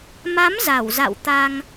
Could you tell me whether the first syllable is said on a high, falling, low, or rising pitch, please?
rising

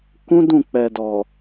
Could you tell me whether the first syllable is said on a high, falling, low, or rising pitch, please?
high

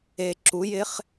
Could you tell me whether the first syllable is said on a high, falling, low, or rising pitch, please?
low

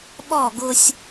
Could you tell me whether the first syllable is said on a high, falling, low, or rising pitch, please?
falling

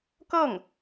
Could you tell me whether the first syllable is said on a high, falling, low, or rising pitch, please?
falling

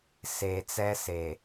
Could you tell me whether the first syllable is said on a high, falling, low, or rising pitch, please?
low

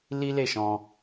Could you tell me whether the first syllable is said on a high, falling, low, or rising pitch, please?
high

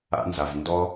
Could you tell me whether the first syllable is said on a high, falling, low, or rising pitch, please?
high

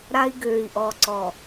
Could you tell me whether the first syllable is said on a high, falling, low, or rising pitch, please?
high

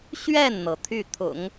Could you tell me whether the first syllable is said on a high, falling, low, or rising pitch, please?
falling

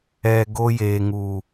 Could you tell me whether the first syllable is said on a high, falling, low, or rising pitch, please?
low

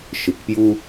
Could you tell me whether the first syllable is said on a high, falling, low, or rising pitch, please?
low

